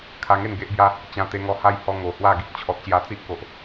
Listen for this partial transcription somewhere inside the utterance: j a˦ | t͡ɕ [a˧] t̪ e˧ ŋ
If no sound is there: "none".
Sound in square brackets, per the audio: ã˧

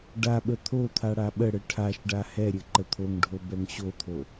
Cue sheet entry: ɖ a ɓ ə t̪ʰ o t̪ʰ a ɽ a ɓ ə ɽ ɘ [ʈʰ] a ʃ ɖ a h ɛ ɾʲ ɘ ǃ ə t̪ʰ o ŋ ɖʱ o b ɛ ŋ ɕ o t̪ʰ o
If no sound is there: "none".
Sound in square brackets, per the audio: ʈʰ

